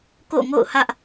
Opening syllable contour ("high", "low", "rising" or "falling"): falling